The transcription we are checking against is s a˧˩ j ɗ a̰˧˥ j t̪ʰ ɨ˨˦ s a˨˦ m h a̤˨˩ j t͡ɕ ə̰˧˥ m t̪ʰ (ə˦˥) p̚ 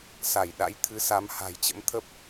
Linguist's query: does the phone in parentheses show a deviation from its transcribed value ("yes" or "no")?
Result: no